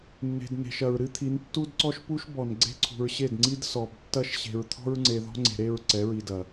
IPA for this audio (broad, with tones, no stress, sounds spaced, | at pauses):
nː e̤˨ d n e̤˨ ʃ ɐ˨ ɹ ɾ ɨ˦ t̪ʰ i˨˦ n tː u˦ d ǀ ɔ˦ ʃ p u˦ ʃ b ɔ˨ n ɡ͡ǀ e̤˦ ǀʰ ṳ˨ ɹ ɕ e˦˨ d ŋ͡ǀ i˦ d s ɔ˨ b tː ɐ˦ ʃ ɕ e̤˨ ɹ t̪ʰ ɔ̤˦ ɹ ŋ͡ǀ e˨ ð ɔ̤˦ ŋ͡ǀ e̤˨ ɾ e˦˨ ɹ ǀ ɛ˨˦ ɹ i˨ d ɐ˨